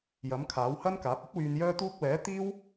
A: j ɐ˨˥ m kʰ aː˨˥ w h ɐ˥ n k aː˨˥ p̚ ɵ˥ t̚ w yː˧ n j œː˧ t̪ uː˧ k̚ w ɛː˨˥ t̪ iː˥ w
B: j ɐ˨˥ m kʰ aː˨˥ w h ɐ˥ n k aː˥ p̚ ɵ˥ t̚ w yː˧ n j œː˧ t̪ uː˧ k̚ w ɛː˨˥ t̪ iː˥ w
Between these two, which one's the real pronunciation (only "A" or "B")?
A